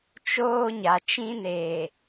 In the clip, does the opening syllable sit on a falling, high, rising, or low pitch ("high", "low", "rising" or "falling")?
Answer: high